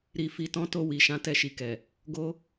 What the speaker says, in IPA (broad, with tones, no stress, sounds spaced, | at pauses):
ɾ i˨ f i˨ t ɔ̃˨˦ t o˧ w i˨ ʃ ã˨˦ t ɛ˧ ʃ i˨ k ɛ˨ | ɡ o˦